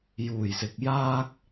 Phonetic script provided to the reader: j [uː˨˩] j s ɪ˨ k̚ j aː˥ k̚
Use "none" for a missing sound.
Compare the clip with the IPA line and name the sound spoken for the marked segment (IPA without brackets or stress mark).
uː˨˩